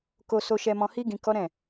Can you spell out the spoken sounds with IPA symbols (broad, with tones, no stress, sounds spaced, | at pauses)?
k o˧ s o˧ ʃ ɛ˧ m ɔ̃˧ h i˦ ɡ ĩ˧ k ɔ˦ ɾ ɛ̃˦˨